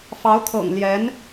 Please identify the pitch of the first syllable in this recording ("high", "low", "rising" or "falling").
rising